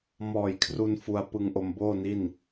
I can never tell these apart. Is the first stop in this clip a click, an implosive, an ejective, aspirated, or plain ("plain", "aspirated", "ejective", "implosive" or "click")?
aspirated